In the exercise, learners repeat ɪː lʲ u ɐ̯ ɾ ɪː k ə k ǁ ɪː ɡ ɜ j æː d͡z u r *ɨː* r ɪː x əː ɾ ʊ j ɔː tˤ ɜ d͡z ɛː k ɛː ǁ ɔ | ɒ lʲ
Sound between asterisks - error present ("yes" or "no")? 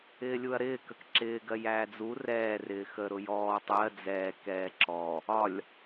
yes